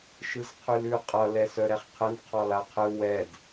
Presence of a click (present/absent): absent